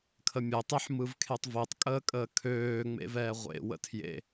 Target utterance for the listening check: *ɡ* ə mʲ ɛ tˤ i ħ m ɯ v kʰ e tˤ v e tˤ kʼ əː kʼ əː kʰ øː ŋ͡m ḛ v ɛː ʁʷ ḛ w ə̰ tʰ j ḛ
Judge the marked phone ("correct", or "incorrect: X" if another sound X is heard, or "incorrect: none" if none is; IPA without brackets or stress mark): incorrect: kʰ